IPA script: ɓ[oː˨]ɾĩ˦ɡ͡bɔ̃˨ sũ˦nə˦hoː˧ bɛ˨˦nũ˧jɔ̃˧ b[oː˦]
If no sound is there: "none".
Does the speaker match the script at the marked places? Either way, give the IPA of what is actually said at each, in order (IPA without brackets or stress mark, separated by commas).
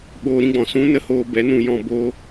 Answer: oː˧, oː˦